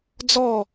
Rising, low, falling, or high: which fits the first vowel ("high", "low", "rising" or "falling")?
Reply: falling